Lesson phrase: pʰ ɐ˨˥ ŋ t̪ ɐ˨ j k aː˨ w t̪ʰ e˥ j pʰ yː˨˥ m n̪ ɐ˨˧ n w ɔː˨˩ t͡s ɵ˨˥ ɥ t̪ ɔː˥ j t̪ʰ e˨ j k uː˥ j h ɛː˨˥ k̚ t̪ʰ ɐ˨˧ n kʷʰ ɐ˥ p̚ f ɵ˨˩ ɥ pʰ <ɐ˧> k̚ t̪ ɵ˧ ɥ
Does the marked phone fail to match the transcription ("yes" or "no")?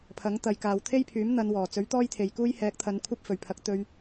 yes